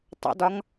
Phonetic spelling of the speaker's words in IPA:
tˤ ə̰ d ɒ ŋ

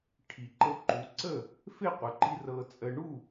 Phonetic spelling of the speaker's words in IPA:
ʈʰ i˩ ǃ ɤ˧ ǃ u˩˥ ǀ ə˥˩ | f e˥˩ qʷ ə˩˥ ǃ i˧ r ɤ˧ t͡sʼ ə˧ ɳ u˥˩

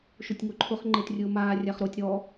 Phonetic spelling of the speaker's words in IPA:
ʃ ʊ tʲ ŋ o ǃʰ ʊ χ ŋ͡ǃ e t rʲ ʊː m aː rʲ a χ ɾ o tʲ ɾ ɔ

